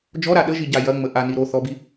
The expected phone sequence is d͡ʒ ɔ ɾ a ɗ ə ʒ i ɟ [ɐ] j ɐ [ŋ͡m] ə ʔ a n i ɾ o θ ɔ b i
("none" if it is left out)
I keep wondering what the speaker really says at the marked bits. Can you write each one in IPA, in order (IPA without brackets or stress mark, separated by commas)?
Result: a, ŋ͡m